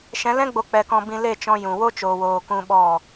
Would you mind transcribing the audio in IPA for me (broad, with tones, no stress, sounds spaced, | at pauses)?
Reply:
ʃ ɛ̃˨˦ l ɛ̃˦ ɡ͡b o˨ k͡p ɛ˨ k ɔ̃˨ b ĩ˨ l e˦˨ t͡ʃ ɔ̃˧ j ũ˨ w o˦ t͡ʃ oː˨ w oː˨ k ũ˧ ɓ ɔ˦˨